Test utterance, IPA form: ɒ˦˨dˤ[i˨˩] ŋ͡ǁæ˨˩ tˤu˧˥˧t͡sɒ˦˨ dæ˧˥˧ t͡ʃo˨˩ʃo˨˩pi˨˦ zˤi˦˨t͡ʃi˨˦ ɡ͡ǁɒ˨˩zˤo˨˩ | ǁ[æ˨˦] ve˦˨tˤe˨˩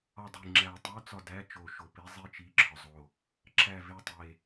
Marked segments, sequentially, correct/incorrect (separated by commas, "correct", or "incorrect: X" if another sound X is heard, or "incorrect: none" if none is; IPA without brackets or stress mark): correct, incorrect: æ˦˨